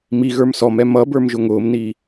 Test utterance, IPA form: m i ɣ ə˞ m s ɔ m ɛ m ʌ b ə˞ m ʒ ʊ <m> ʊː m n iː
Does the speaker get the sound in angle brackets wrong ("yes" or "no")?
yes